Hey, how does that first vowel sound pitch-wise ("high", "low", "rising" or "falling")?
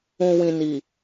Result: low